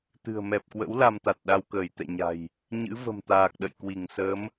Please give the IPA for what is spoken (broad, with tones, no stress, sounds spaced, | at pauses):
t̪ ɨ̤˨˩ ə̯ m ɛ˨˩ p̚ k w ə̰˧˥ w l a˧ m t̪ a˨˩ t̚ ɗ a˧ w k əː˧˩ j t̪ ɛ̰˧˨ ɲ a̤˨˩ j | ɲ ɨ̰˧˥ v ə̤˨˩ m t̪ aː˨˩ k̚ ɗ ə̰˧˨ j k w i˧˩ ŋ s əː˨˦ m